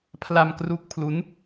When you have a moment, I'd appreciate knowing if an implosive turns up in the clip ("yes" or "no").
no